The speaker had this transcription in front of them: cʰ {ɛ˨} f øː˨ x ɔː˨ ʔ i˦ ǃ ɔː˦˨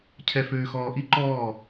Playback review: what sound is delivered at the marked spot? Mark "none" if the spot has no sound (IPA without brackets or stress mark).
ɛ˨